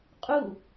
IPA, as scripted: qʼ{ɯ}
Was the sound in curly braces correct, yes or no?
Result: no